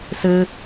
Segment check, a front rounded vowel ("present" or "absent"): absent